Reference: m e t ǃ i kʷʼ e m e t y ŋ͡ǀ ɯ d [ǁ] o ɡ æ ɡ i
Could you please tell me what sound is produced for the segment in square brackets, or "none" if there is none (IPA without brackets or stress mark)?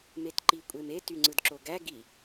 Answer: ǁ